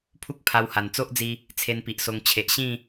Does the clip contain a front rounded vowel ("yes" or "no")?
no